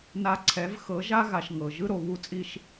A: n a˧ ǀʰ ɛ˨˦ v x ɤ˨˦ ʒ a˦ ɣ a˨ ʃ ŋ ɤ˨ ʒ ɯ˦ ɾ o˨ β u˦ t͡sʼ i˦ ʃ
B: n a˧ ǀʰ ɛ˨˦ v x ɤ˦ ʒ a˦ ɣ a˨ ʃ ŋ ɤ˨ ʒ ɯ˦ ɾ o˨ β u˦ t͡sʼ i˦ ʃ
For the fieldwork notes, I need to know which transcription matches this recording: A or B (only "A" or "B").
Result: A